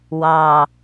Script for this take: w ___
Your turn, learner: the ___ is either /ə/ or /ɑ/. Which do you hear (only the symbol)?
ɑ